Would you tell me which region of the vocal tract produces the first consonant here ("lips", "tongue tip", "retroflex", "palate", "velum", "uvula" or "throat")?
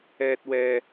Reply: tongue tip